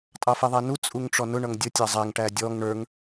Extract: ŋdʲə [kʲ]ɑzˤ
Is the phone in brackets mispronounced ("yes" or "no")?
yes